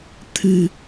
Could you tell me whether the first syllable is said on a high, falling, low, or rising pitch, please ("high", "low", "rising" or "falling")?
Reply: low